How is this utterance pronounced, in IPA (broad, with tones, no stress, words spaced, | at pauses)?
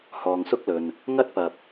hɔː˨ŋsʊ˥k̚lɵ˨n | ŋɐ˥t̚pɐ˨p̚